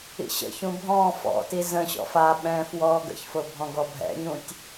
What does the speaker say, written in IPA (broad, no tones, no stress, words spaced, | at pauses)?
ḭɕə̰çũ bʱɔ̃ fɔ̰ti zə̃ɕɔ̰f aɓɛ̃ːf wɔːɡə̰çfʊ bʱɔ̃ɡɔbʱɛ̰ɲũtʲ